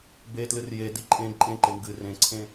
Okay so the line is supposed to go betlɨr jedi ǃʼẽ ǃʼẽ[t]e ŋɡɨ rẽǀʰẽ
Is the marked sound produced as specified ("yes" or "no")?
no